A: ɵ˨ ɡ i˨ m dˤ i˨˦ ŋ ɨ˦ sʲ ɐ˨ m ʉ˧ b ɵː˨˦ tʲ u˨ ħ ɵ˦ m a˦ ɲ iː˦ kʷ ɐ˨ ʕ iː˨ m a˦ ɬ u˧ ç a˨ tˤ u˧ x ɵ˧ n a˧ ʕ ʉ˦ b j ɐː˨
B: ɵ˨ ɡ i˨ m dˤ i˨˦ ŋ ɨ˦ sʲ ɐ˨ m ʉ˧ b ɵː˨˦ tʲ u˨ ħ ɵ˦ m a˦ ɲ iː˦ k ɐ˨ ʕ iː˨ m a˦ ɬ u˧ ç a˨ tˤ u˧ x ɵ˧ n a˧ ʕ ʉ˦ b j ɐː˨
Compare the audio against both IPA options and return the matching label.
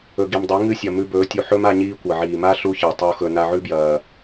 A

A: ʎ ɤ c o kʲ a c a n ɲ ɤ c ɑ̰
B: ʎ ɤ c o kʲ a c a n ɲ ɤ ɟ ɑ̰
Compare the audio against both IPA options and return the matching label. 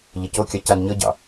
B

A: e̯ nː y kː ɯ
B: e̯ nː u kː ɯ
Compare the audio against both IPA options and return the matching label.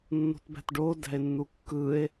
B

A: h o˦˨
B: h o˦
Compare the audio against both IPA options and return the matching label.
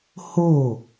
A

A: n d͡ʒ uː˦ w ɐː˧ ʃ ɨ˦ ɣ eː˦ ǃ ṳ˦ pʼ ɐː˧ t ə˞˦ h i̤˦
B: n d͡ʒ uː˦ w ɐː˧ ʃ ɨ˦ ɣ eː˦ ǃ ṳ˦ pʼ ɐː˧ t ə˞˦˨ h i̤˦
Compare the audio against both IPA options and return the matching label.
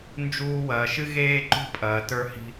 A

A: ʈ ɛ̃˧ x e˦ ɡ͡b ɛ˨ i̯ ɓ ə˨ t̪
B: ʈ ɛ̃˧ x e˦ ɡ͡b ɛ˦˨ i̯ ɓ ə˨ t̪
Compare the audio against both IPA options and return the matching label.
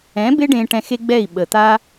B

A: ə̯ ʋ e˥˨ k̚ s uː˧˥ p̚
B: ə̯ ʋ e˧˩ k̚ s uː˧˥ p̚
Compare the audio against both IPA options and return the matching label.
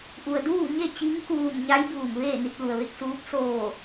A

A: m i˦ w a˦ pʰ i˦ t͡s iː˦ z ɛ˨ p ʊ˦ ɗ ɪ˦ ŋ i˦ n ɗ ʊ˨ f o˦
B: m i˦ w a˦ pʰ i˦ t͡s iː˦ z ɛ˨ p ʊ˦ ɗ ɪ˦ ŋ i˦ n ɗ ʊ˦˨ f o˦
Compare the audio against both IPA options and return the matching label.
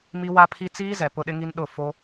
B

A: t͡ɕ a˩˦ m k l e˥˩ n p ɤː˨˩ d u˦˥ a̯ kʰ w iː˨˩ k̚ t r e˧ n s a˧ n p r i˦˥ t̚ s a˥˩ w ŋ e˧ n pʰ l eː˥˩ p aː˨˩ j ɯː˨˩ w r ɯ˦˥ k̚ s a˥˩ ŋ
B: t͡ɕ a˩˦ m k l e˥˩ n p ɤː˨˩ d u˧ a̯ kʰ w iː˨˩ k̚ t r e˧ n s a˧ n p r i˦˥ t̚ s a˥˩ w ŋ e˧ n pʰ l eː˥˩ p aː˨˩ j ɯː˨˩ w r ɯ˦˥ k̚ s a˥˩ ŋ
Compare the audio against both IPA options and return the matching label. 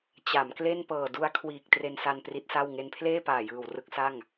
B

